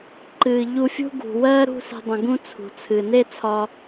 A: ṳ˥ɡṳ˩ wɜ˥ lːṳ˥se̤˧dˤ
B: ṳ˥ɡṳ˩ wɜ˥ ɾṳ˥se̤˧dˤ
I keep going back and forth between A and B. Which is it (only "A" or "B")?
B